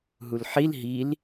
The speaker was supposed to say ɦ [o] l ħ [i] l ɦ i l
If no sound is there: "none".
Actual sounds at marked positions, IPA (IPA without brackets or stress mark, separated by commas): u, i